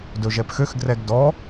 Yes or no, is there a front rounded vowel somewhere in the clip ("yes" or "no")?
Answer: yes